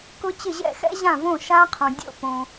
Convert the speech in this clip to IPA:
kʊ˦˥t͡ɕɪ˥˩ʑɛ̰˥˩ xɛ̰˦˥ʑã˥˩võ˥˩ʃa˦˥ qʰõ˨dʲo̰˥˩põ˨

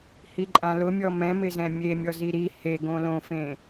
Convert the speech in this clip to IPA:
hiǃʼãlʊmʲɔ mɛ̃mɪzɛ̃ mʲemʲɔ ziɾi he ɡõlõfẽ

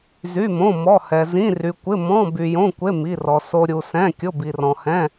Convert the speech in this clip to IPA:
zy˧˥˧mõ˧˥˧mɔ˧˥˧hɛ˧ zĩ˧˥˧ry˧kʷɪ˧˥˧ mɔ̃˧˥˧ by˧jõ˧˥˧kʷe˧˥˧ mi˧˥˧rɔ˧ so˧ ɾʲu˧ sɛ̃˧˥˧kʲʊ˧˥˧ bi˧rɔ̃˧hɛ̃˧˥˧

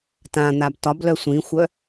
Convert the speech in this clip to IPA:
tãn̪ab tɒblœ sʷĩxʷœ

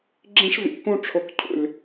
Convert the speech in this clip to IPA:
ɡ͡ǁĩ˧ʂ vḭ˨˦kũ˧ʈ͡ʂʰʊ˨k cʰṵ˨lʲ

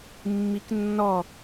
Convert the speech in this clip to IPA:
mːiknːɔ

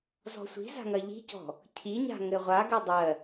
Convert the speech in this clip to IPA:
zɔ̤sʷi̤za̤ ŋɐʎi̤cɔ̤ | cʰiɲa̤ ŋɘʁʷaɡɘ dˤɜ

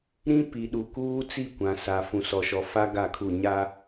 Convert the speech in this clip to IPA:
ɾĩ˦pi˨ ɗu˨kuː˦t͡si˦˨kʷã˨ sa˨ fũ˨sɔ˨ʃɔ˨fa˦ ɡa˦˨kʰu˦˨ ɲa˦

